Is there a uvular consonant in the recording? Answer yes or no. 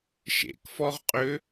yes